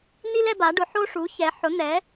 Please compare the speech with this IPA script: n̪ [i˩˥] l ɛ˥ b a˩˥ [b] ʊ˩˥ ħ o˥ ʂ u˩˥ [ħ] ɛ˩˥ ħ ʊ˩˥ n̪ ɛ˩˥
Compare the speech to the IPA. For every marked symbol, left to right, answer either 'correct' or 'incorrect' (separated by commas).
incorrect, incorrect, incorrect